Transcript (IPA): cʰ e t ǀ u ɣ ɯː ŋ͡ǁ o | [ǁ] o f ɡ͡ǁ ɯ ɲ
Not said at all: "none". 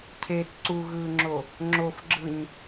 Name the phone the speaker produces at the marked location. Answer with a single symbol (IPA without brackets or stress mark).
ŋ͡ǁ